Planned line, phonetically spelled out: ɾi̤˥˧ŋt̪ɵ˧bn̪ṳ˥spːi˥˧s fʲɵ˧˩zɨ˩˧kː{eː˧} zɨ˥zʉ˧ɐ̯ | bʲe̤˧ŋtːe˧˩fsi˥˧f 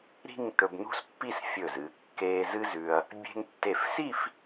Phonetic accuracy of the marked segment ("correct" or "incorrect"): correct